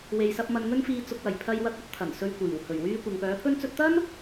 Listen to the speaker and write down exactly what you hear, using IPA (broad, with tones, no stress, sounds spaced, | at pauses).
w e˨ j s ɐ˧ p̚ m ɐ˨ n ŋ ɵ˧ n f iː˨ t͡s ʊ˨ k̚ w ɐ˨˩ j pʰ ɐ˧ j w ɐ˧ k̚ ɐ˥ t̚ t̪ʰ ɐ˨˩ n s ɵ˧ ɥ kʷ iː˨˩ w h ɵ˨˩ ɥ w yː˧ kʷ ɐ˨ ŋ p œː˨˥ pʰ ɵ˥ n t͡s ɵ˧ t̚ t̪ ɐ˥ n